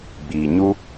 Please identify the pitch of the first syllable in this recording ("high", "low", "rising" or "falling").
low